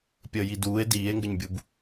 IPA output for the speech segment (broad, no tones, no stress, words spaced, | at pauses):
pʲəːjiduːe̯ diːe̯ŋɡəɲbʲub